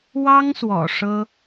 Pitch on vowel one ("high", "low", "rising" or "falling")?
high